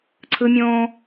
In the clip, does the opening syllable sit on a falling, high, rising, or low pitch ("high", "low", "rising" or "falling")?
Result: high